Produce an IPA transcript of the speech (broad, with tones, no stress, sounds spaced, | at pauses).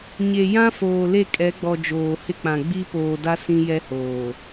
ɲ e˨ j ã˦ f oː˨ l e˦˨ kʼ ɛ˨˦ ɡ͡b ɔ˨ d͡ʒ oː˨ h ɪ˦ k͡p ã˨ ɡ͡b i˦ p oː˨ d a˦ s ĩ˦ j ɛ˦ h oː˨